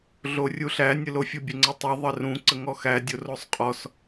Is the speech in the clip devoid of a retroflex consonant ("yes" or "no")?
yes